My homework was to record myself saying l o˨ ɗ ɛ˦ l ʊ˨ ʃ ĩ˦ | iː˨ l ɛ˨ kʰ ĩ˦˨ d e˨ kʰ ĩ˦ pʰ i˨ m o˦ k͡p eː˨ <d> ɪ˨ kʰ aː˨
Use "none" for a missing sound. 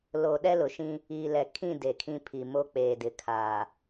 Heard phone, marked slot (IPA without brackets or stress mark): d